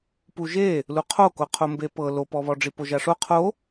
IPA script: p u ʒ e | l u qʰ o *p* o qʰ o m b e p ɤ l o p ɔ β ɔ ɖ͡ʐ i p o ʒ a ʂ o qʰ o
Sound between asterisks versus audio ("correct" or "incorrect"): incorrect